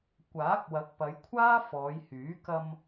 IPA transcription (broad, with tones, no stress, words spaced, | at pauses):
kʷaː˨˥k̚wɐ˨˥k̚pɐ˨˧jkʷʰaː˥ fɔː˨˧jhyː˨˥ kɐ˧m